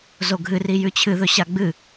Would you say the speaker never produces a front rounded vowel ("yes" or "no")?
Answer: yes